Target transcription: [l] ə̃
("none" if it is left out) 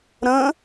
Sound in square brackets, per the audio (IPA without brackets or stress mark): ɾ